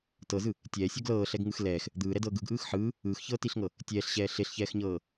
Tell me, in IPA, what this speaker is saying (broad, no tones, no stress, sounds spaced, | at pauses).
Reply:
t ɤ z ɯ | tʲ ɛː sʲ ɔ ɡ l ɤː ɬ ɛ ɡ ŋ ɯ x l ɛː x | d̪ ɯː ɾ ɛ d ɤː ɡ ɯ ɡ ʔ ɯː x ħ ɯː | ɯː x ç ɤː t i ɬ ŋ ɤ | tʲ ɛː ɬ ɕ ɛː ɬ e ɬ ç ɛː x ɲ ɤː